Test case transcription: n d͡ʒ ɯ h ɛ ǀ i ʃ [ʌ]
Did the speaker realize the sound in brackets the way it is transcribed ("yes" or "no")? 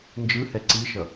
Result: yes